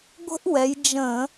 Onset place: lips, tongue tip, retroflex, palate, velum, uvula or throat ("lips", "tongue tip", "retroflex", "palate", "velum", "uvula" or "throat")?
velum